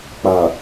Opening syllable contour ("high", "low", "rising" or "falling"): low